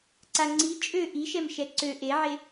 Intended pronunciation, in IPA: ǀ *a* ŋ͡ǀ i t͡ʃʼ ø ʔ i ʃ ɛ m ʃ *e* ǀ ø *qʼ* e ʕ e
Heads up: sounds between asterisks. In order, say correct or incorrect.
correct, incorrect: ɛ, incorrect: ʔ

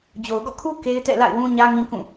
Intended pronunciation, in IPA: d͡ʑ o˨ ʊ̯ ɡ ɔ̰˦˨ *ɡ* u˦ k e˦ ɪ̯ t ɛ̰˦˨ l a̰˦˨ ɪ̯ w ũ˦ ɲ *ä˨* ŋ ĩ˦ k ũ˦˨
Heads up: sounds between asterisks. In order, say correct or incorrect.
incorrect: kʰ, incorrect: ä˦

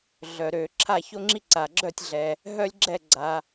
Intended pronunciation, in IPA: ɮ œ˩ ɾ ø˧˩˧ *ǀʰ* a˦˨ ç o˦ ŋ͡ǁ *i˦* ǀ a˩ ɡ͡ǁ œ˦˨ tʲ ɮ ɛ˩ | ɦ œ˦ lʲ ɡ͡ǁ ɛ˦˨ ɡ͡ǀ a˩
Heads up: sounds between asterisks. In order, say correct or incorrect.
incorrect: ǁʰ, correct

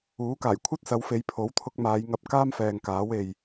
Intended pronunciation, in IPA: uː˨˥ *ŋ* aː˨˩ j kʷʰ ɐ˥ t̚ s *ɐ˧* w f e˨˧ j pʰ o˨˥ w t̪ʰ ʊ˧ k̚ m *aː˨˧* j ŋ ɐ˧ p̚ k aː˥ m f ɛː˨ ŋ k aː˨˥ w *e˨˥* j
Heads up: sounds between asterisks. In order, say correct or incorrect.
incorrect: k, incorrect: ɐ˨˧, correct, incorrect: e˨

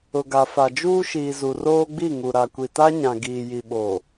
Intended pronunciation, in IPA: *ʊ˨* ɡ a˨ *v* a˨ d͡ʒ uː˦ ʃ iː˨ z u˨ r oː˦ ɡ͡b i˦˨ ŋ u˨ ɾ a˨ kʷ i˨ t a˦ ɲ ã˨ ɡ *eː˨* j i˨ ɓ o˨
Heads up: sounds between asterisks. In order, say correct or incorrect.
correct, incorrect: f, incorrect: iː˨

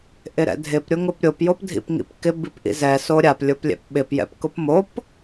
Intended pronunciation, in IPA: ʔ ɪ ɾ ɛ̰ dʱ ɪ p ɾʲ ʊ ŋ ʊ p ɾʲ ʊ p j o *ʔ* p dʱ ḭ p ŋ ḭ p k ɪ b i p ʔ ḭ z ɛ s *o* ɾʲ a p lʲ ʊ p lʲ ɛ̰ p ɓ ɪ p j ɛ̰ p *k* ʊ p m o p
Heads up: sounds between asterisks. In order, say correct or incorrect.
incorrect: none, correct, correct

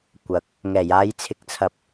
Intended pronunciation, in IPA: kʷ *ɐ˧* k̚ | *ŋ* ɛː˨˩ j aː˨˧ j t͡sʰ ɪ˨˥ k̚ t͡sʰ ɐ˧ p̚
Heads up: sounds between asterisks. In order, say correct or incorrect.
incorrect: ɐ˨, correct

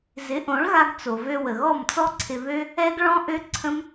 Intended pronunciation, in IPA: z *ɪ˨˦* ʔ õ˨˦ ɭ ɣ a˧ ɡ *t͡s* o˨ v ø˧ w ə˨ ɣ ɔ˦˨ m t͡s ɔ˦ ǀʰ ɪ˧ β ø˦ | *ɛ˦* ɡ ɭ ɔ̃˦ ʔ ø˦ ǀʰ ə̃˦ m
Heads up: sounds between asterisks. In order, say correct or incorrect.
correct, correct, correct

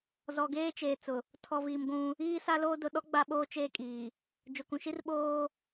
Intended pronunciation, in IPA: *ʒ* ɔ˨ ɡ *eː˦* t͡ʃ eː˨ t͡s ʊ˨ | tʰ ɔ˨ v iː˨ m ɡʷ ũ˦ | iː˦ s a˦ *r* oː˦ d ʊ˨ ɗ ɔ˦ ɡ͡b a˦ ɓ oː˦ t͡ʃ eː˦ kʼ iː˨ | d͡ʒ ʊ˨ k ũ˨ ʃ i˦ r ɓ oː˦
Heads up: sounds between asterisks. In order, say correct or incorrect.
incorrect: z, correct, incorrect: l

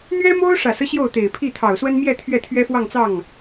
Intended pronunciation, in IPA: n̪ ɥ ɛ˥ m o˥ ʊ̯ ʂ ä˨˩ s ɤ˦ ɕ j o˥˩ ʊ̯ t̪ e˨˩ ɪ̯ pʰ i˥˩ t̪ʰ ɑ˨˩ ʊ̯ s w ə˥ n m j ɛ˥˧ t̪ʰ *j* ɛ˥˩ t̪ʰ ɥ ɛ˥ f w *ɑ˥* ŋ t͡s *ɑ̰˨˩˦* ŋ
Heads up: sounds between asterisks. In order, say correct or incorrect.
incorrect: ɥ, incorrect: ɑ˥˧, incorrect: ɑ˥˩

